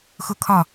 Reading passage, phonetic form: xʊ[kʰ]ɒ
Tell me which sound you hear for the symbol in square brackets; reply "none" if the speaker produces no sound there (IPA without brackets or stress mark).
kʰ